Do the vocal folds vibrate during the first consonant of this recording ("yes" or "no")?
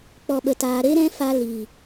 no